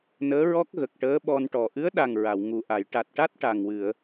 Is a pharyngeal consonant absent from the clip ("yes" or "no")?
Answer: yes